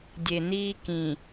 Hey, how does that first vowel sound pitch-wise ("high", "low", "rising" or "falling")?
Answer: low